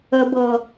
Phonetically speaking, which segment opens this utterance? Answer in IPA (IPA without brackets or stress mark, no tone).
ə